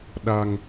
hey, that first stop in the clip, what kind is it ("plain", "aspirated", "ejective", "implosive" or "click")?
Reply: implosive